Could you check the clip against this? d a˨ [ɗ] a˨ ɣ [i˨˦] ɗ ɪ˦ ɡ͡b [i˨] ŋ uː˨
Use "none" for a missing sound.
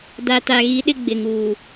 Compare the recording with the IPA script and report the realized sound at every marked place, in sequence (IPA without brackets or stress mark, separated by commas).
t, i˨˦, ɪ˨